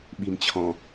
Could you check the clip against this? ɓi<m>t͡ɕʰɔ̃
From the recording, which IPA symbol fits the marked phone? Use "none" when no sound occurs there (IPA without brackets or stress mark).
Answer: m